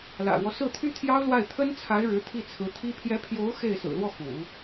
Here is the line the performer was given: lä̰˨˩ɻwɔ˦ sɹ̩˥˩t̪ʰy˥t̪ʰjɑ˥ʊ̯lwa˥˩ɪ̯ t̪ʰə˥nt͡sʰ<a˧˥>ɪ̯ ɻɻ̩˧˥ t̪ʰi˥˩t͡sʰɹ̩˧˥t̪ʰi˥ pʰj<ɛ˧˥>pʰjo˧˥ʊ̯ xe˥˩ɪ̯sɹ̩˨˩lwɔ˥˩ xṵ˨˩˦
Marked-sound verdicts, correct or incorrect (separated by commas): correct, correct